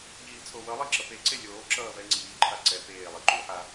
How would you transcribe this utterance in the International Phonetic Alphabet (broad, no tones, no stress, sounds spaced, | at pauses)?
ʎ iː t͡sʼ o w ʌ lˠ i ǁ ʌ p e ǀ e lʲ oː ǁ ʌː v ɛ ŋ͡ǀ iː ǃʰ a ǀ ɛ p eː lˠ i ǃ u ħ a